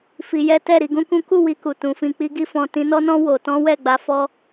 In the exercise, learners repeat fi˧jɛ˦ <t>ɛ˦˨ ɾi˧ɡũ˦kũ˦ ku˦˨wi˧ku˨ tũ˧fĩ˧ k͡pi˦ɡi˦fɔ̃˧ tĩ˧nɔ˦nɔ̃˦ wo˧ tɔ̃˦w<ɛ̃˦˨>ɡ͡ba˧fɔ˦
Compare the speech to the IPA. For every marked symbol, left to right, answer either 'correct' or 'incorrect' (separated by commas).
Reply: correct, incorrect